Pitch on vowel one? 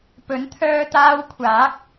rising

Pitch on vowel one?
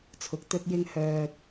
low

